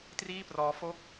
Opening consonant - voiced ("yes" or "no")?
no